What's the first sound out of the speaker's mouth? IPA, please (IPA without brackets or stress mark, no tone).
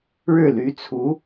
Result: ɻ